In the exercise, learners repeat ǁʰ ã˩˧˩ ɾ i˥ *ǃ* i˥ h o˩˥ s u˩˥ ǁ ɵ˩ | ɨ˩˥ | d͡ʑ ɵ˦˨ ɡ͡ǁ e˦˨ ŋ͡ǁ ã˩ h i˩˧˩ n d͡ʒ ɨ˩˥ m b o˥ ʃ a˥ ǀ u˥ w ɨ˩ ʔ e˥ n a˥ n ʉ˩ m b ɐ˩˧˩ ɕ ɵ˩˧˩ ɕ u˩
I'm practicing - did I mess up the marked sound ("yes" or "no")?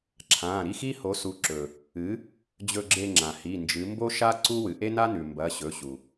yes